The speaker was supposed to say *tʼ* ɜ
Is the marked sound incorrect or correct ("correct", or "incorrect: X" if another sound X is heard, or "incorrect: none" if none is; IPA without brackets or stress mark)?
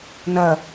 incorrect: n